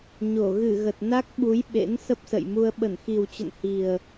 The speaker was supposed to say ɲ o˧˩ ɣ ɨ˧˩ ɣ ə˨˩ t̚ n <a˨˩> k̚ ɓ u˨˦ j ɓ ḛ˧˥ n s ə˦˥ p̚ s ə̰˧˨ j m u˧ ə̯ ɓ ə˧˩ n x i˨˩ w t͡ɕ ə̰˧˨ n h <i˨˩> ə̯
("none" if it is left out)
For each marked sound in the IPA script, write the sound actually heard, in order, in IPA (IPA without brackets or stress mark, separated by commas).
a˦˥, i˨˩